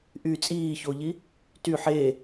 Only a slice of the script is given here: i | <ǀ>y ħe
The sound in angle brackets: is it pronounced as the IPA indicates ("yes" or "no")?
no